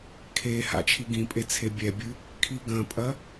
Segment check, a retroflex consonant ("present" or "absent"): absent